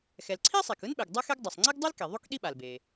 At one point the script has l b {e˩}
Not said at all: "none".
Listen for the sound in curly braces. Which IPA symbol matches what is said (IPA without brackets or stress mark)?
e˩